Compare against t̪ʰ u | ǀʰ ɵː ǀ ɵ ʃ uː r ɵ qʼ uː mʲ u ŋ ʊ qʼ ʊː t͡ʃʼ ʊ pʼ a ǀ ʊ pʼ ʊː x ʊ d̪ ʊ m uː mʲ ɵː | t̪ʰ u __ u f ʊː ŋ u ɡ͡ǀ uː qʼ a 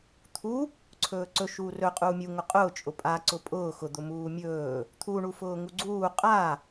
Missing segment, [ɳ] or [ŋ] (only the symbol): ɳ